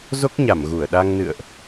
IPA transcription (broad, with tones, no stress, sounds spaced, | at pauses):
z o˦˥ k̚ ɲ a˧˩ m ɣ u˧˩ ə̯ ɗ a˧ ŋ n ɨ̰˧˨ ə̯ ʔ